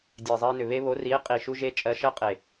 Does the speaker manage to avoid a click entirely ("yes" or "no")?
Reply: yes